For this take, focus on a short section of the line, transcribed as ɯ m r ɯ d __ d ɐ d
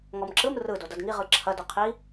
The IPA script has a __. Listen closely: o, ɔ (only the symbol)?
o